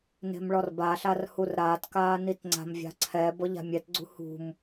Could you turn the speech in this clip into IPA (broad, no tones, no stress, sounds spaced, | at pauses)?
n e̤ m ɭ ɔ r b a ɬ a r h u r ɾ aː t k aː n i t ŋ͡ǀ a̤ m vʲ a̤ ǀʰ ɛ b ɔ ʎ a̤ mʲ ɛ t ɡ͡ǀ ṳ h ṳ m